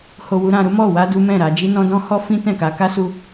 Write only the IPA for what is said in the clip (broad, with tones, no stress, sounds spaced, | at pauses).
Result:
h o˧ w u˧ ɾ ã˧ ɾ u˦ m ɔ˦˨ w a˧ d u˦ m ɛ̃˦˨ ɾ a˨˦ d͡ʒ i˦ n ɔ̃˦ d ɔ̃˦ h ɔ˦ f ĩ˦ t ɛ̃˦˨ k a˨˦ k a˦ s u˧